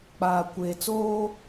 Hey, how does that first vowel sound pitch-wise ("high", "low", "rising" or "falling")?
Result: low